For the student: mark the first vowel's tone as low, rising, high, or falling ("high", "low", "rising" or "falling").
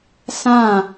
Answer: falling